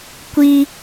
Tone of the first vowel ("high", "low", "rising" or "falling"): high